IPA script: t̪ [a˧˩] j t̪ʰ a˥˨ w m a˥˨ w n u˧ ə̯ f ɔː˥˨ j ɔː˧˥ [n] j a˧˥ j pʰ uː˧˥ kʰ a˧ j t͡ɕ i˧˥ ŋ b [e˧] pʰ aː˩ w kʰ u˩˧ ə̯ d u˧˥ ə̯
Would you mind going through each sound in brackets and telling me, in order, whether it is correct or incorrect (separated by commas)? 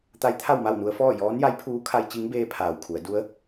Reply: incorrect, correct, incorrect